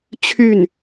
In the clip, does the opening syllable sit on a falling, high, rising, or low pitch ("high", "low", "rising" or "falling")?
falling